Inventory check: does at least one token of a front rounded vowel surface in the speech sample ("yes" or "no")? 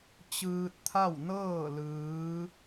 no